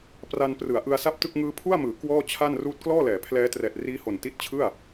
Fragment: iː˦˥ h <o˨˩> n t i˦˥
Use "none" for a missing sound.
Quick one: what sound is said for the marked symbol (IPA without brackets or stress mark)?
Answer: o˨˩